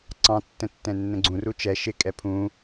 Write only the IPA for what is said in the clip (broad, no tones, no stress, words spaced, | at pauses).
ǀɑ̃tːə̃ tːɛ̃nːə̃ɡ͡ǀũru t͡ʃɛ ʃɪkʼɛ pʰũ